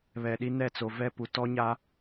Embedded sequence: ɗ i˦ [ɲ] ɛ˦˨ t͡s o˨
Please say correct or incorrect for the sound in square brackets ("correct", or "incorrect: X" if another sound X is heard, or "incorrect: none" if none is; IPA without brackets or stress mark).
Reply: incorrect: n